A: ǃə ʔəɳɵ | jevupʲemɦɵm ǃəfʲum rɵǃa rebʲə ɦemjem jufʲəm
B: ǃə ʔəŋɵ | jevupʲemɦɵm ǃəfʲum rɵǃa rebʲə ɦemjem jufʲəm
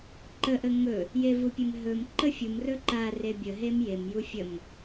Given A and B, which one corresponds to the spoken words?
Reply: B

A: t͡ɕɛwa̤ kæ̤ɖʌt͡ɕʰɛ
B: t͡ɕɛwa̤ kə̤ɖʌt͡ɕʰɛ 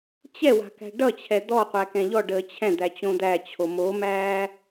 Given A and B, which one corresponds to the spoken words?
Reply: A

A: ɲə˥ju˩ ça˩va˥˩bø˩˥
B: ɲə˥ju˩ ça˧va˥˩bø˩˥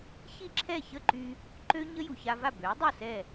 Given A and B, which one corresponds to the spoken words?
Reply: B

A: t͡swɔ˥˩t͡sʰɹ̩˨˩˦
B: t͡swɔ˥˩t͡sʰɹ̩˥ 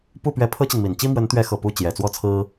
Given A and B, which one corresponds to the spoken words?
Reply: B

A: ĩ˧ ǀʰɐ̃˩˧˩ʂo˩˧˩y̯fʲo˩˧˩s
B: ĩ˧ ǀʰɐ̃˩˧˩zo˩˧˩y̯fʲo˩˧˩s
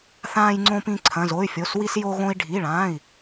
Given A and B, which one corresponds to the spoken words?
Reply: B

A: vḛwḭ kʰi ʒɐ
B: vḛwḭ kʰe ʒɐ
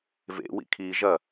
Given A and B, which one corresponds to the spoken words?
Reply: A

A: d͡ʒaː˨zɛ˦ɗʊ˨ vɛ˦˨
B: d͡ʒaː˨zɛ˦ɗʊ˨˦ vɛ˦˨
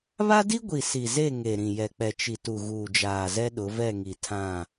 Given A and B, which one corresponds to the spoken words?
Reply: B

